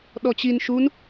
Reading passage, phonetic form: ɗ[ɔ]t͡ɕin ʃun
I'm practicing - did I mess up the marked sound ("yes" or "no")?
no